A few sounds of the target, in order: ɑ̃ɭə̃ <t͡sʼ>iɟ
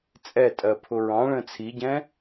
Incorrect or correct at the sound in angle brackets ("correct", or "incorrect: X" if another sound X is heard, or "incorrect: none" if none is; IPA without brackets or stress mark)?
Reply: incorrect: t͡sʰ